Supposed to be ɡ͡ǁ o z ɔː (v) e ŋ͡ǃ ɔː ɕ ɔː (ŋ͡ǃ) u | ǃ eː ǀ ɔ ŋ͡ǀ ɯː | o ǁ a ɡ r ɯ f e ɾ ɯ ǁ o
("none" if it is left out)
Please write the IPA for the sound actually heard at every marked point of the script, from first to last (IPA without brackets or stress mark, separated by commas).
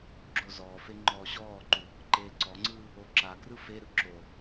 f, ǃ